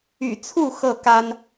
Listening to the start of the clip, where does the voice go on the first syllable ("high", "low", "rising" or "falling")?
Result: low